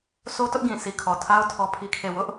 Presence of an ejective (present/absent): absent